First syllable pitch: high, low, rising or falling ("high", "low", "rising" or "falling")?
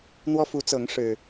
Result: high